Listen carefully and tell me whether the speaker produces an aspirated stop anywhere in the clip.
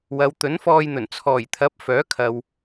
yes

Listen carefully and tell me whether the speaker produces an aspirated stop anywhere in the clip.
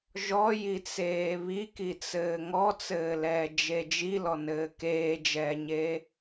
no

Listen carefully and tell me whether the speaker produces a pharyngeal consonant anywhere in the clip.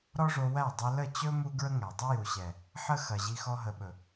yes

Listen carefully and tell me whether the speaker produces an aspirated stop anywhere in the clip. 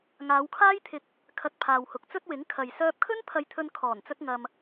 yes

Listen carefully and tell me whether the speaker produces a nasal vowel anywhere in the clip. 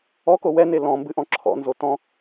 yes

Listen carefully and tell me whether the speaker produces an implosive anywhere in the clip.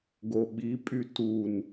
yes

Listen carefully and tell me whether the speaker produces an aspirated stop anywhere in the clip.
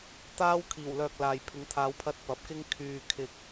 yes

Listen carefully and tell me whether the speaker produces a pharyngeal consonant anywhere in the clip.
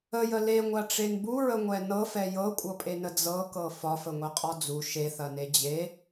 no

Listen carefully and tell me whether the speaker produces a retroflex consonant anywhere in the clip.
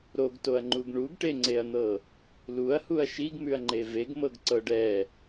yes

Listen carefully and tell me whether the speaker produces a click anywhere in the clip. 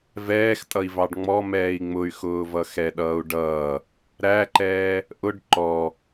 yes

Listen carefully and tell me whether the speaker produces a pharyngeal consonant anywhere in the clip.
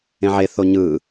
yes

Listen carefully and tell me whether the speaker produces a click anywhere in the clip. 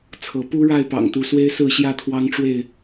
no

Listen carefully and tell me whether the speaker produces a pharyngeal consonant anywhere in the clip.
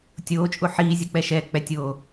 yes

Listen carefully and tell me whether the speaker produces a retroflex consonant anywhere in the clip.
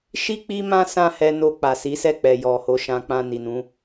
no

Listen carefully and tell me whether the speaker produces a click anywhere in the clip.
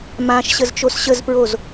no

